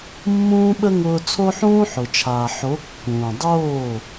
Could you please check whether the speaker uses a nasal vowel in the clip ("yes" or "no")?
yes